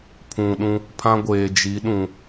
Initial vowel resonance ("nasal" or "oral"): nasal